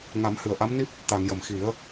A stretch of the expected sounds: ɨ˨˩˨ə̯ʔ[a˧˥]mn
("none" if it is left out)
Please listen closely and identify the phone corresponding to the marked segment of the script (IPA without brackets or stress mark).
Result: a˧˥